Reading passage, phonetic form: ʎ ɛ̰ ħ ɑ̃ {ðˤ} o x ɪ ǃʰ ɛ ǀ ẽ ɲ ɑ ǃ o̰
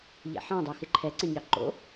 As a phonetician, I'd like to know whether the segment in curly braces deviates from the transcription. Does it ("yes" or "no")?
yes